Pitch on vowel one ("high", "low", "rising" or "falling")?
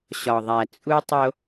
low